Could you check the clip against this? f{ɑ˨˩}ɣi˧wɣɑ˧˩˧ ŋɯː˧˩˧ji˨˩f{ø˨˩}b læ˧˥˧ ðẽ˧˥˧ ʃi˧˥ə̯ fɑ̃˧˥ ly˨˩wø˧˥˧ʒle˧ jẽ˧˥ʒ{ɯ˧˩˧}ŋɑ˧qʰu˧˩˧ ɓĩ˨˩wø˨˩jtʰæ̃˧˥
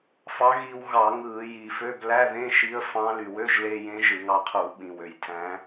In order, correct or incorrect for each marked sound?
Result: incorrect, incorrect, correct

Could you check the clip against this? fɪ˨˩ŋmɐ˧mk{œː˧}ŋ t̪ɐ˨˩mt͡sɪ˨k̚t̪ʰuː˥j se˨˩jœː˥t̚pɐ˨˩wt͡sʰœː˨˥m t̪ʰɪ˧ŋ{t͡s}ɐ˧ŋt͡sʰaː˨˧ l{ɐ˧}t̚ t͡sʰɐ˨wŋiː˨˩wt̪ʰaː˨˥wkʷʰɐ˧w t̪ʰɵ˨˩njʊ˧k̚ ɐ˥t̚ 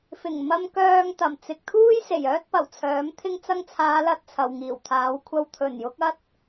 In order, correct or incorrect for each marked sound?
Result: correct, correct, correct

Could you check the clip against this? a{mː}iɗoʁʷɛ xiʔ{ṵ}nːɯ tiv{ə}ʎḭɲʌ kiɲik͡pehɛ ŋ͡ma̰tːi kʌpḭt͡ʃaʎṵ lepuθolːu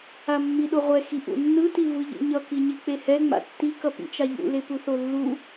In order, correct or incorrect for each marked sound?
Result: correct, correct, incorrect

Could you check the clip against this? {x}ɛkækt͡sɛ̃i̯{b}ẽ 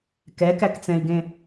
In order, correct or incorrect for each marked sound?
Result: incorrect, incorrect

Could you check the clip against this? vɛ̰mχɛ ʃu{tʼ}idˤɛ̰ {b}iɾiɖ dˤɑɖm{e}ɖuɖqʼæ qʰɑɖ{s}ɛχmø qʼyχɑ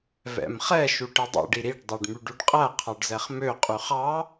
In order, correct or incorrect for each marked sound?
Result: incorrect, incorrect, incorrect, incorrect

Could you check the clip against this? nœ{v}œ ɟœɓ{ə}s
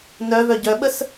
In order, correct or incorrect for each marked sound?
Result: correct, correct

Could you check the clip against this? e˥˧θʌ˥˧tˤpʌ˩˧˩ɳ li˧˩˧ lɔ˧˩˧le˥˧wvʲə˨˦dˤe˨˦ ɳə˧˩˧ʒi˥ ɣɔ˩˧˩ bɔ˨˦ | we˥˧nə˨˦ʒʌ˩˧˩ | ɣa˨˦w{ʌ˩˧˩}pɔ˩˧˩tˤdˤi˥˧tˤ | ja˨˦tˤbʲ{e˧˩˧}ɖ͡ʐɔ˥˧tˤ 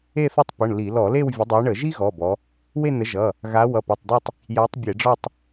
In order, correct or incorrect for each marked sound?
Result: correct, correct

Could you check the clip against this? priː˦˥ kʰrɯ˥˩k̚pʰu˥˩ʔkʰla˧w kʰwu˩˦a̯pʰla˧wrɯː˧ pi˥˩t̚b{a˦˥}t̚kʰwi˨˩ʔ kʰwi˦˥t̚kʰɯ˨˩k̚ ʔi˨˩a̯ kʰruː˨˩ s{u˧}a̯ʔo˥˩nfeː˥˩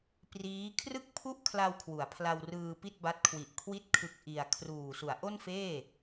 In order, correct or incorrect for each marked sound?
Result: correct, incorrect

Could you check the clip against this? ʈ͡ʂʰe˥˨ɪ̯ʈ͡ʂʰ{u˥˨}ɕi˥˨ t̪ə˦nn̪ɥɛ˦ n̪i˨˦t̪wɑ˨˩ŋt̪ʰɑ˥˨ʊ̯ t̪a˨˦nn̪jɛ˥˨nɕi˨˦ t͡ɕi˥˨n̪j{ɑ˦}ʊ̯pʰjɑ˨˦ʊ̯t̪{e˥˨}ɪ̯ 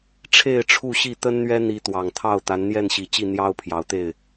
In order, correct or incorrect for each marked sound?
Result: correct, correct, correct

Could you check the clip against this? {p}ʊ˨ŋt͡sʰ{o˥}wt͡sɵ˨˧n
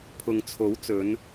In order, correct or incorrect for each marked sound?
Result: incorrect, incorrect

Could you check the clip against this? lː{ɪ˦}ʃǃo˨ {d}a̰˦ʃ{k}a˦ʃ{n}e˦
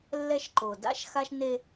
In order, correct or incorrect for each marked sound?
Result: incorrect, correct, incorrect, correct

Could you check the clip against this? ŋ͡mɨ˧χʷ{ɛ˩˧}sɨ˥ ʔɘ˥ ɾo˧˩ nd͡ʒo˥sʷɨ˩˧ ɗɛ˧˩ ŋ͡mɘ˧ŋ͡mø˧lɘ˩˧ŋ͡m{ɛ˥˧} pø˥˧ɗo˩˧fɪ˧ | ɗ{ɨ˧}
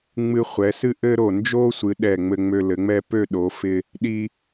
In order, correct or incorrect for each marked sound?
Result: correct, correct, incorrect

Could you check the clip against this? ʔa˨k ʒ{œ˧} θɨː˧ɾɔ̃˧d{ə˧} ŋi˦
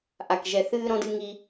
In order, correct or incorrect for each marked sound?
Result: incorrect, incorrect

